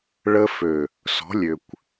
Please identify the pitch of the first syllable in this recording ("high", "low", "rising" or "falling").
high